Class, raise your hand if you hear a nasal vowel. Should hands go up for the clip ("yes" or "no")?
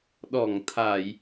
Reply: no